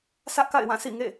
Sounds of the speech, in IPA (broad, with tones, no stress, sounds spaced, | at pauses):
sʰ ä˦ ʔ k a̰˦˨ ɪ̯ w ã˦˨ sʰ ḭ˦˨ ŋ ḛ˦˨